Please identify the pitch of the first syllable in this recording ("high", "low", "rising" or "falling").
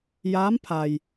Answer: rising